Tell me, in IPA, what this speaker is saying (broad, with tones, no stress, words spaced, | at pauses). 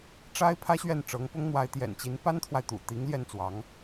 ʈ͡ʂa˥ɪ̯ pʰä˥ɕɥɛ˥˩nʈ͡ʂɤ˧˥ŋpʊ˥ŋ n̪wa˧˥ɪ̯t̪jɛ̰˨˩nt͡ɕi˧˥n pa˥nt̪ʰwa˨ɪ̯t̪ṵ˨˩t̪i˧˥ŋ ljɛ˥˩nt͡swɑ˧˥ŋ